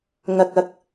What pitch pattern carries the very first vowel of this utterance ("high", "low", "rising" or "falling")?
low